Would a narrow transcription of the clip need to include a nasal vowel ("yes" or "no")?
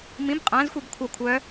yes